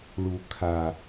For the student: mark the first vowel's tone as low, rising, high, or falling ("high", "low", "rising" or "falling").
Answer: low